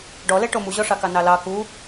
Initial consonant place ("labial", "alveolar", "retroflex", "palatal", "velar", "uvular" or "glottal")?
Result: retroflex